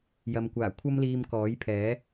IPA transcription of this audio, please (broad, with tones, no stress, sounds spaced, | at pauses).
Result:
j ɐ˨ m kʷ aː˨˩ kʷʰ ɐ˥ m l iː˧ m k ɔː˨˥ j pʰ ɛː˨˥